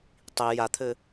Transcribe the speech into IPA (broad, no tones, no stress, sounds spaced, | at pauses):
tˤ i j a t̪ʰ ɘ